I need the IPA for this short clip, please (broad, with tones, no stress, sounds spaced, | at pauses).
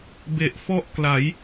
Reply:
b e˨˩ ʔ f ɔ˥˩ ʔ k l a˩˦ j